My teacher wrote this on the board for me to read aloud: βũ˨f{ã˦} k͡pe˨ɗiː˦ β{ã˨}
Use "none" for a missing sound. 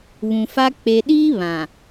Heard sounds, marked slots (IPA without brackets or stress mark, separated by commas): a˦, ã˨